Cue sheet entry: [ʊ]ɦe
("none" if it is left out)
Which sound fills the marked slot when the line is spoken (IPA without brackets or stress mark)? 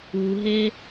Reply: u